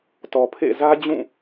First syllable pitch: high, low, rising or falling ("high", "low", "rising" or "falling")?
low